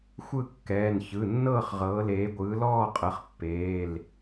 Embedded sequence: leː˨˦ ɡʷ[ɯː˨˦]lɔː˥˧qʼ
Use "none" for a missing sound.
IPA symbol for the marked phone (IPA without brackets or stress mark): ɯː˨˦